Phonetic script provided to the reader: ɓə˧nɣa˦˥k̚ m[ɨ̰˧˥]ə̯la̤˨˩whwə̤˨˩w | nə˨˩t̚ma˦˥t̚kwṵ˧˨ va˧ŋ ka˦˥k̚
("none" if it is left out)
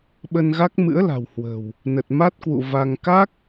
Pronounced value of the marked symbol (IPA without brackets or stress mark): ɨ̰˧˥